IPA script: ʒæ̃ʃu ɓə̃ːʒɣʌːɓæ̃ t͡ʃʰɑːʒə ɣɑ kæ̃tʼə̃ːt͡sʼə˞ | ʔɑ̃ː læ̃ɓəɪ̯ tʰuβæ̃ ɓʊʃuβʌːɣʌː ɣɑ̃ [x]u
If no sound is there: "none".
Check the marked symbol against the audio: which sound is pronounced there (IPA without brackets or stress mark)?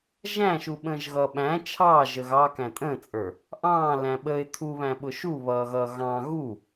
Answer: ɣ